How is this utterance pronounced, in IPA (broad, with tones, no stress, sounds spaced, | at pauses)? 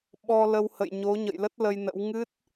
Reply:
ɓ ɔ˧ l ə˧ w h ə̰˧˨ j ɲ o˨˦ ɲ ə̰˧˨ j l ə˦˥ t̚ l ə˧ j n ə̰˧˥ w ŋ ɨ˦˥ t̚